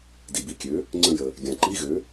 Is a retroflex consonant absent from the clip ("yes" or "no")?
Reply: yes